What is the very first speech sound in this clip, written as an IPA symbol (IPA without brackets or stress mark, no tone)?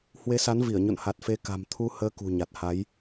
h